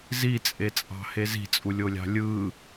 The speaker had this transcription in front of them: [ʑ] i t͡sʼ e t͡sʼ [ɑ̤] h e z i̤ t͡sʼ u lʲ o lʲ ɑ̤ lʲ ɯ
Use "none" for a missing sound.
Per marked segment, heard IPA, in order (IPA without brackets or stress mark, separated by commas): z, ɑ̤